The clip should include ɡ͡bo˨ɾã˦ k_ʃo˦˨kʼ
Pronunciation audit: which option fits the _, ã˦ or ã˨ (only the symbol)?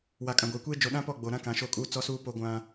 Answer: ã˨